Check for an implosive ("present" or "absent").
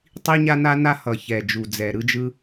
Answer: absent